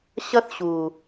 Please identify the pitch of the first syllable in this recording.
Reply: high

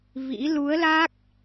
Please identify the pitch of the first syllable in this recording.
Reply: rising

